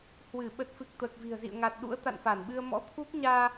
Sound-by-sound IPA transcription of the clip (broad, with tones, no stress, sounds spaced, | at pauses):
h w ɨ˧˩ ɓ ə˨˩ t̚ f ɨ˨˩ k̚ t̪ əː˨˩ k̚ v i̤˨˩ ə̯ z ḭ˧˨ ə̯ ŋ a˨˩ t̚ ɗ ṵ˧˥ ə̯ t̪ a̰˧˨ n f a˧˩ n ɓ ɨ˧ ə̯ m ɔ̰˧˥ t̪ʰ u˦˥ k̚ ɲ aː˧